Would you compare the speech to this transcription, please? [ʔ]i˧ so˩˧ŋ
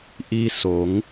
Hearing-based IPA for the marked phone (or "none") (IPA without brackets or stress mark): ʔ